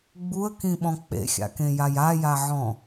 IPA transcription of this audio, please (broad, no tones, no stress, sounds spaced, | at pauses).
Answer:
ɡ͡b u ə̯ k ĩ ɓ ɔ̃ k͡p ḛ xʲ a̰ k ẽ j a j a j a ʕ ɔ̃